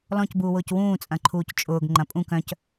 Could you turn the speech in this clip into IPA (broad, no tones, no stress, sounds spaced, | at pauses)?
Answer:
l ɔ̃ c b uː w ʊː c w ũː t͡sʼ ɐ̃ ǃʰ uː c t͡ʃʼ ʊː ɡ ŋ͡ǃ ɐ̃ pʼ ũ k œ̃ c